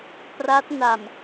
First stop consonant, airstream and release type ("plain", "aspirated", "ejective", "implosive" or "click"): plain